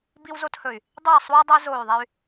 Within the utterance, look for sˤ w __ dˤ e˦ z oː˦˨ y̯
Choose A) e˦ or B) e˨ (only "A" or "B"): A